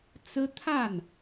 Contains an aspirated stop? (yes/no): yes